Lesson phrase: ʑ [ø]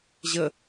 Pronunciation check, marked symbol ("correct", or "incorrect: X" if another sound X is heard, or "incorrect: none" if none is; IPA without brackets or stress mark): incorrect: ə